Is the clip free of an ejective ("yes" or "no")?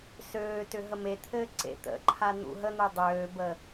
yes